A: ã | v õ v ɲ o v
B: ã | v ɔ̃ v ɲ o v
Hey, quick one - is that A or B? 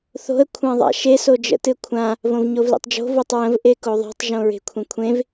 A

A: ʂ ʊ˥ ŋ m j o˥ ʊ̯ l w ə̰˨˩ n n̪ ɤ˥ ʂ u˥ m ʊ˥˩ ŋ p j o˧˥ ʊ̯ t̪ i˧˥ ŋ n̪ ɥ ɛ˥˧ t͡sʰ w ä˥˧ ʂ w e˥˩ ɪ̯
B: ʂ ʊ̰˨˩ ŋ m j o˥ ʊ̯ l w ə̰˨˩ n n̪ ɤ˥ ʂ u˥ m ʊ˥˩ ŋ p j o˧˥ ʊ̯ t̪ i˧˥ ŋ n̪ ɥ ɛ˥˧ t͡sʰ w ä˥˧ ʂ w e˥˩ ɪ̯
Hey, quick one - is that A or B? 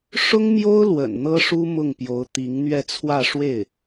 A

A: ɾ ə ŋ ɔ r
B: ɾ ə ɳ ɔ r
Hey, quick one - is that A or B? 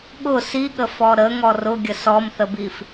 A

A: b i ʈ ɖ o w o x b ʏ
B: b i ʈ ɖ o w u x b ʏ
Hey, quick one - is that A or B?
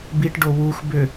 B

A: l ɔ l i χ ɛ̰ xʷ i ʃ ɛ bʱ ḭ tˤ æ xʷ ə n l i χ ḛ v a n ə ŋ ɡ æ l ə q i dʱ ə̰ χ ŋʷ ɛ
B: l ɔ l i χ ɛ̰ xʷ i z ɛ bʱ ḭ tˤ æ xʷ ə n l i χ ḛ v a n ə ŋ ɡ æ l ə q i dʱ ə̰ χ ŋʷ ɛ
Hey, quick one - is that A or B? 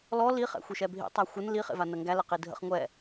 A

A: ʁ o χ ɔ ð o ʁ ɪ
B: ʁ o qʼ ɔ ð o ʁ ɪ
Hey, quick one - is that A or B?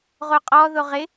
B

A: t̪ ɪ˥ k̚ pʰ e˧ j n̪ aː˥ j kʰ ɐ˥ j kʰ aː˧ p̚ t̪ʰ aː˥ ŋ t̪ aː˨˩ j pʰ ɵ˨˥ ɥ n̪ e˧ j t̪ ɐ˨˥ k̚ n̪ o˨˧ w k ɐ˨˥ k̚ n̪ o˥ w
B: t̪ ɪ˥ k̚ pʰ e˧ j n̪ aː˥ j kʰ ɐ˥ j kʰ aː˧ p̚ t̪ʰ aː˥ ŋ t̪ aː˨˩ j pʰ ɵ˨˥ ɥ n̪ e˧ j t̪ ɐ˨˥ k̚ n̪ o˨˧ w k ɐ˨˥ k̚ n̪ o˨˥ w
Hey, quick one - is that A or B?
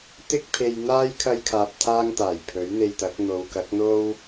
A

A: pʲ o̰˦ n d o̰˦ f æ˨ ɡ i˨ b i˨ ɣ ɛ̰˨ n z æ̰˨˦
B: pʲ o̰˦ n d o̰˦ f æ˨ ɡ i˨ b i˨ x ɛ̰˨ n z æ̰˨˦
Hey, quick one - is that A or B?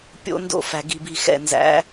B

